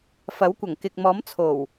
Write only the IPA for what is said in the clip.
fɐ˨˥wkʷɐ˨˩ŋkɪ˨k̚mɔː˨˥m t͡sʰo˨˩w

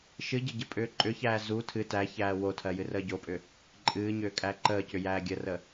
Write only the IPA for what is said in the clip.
ʃɨɟə ɟəpʼʏːǃʼʏçæː zu tʰɨ tæçæː wotʰɜ jɨrəːɟopʼʏ | ǃʼɨːɲʏː kʼæǃəːcʏ jæːɡʲərə

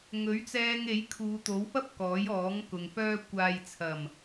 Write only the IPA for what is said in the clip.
ŋɵ˨˥ɥt͡sɛː˧ŋ e˨˥jkʰuː˨˧t̪o˨˥wfɐ˥p̚ kɔː˨˥jɔː˨˥ŋkʊ˨ŋ fœː˧ kʷaː˨jt͡sʰɐ˨˩m

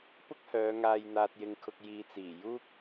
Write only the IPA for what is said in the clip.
pʊ˥k̚hœː˨˧ ŋaː˨jn̪aː˨t̚jɪ˨ŋkʰʊ˨k̚ jiː˨t͡siː˨˩ juː˥k̚

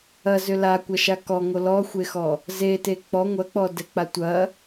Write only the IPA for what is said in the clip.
ɐzʏ lakʷɐʃa kɔŋo lɔxʷexɔ | zete k͡pɔ ŋʷɐk͡pɔ dɛk͡patʷɐ

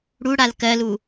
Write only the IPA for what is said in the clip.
ɽuɽal kɜlu

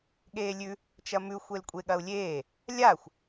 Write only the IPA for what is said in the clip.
ɠeːlʲʉ | t͡ʃɐmʉ xʷelkʷʼeɠɐu̯lʲeː | lʲaxʷ

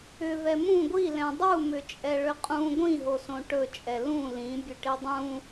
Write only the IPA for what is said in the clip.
ʏ vɛmũ ɡʷilɛ̃ dˤumʏt͡ʃʼɛ ɭʏqʼũ ɡʷĩɦosõ ʈɵt͡ʃʼɛ lũ lĩ bʲɵʈidˤũ

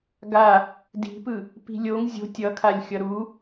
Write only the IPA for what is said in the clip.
ɡa | di̤pɯ | pi̤lʲoŋ zʲo̤ tʲʌkʰalʲ xʲʌɾu

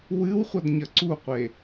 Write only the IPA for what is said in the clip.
wɨwχʷɐdɲɐ ǀuqʷe

